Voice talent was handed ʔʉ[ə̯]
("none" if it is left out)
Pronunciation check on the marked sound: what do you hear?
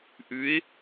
ɪ̯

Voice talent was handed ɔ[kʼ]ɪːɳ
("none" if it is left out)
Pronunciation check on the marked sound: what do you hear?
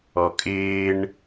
kʼ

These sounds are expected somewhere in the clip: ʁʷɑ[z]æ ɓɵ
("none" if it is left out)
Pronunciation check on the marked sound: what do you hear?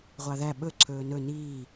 ð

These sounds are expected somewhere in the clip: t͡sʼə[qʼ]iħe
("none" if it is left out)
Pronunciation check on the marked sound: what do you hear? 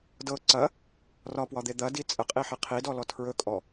qʼ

